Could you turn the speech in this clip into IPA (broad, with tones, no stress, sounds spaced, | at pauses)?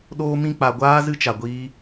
ɗ oː˦ m ĩ˦ k͡p a˧ ɡʷ aː˦ z ɨ˦ t͡ʃ a˧ ɡʷ iː˦